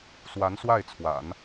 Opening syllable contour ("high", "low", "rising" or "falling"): rising